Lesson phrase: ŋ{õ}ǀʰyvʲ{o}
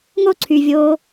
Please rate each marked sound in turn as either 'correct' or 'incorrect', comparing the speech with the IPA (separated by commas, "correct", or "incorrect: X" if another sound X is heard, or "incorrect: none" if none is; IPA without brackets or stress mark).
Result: incorrect: o, incorrect: oː